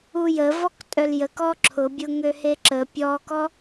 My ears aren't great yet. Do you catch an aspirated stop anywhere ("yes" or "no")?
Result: yes